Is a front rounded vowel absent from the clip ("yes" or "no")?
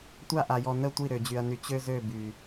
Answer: no